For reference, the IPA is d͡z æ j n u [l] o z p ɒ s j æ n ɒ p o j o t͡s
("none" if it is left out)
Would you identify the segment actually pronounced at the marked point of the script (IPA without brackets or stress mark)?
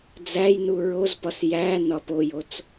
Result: ɹ